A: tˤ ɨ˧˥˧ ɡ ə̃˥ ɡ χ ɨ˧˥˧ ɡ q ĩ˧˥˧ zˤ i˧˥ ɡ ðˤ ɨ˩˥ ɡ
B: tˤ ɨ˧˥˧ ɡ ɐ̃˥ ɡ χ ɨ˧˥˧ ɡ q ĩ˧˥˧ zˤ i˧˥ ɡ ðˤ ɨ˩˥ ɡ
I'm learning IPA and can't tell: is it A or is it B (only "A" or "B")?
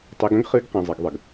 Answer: A